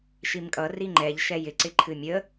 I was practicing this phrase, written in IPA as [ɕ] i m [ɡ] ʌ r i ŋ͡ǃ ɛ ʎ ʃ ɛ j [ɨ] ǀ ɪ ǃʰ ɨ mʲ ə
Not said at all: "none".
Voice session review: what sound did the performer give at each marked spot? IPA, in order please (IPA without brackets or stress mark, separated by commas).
ʃ, kʼ, ɪ